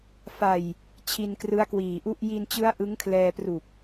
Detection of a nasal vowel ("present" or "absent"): absent